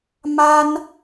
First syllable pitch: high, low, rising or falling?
high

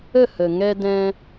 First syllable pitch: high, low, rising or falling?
falling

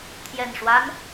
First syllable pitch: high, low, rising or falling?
low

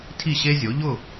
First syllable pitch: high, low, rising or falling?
falling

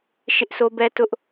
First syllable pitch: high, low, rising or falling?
high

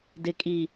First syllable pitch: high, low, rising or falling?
low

